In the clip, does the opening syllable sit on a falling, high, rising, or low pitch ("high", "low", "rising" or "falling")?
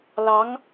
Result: rising